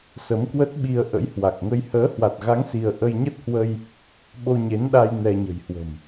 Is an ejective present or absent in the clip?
absent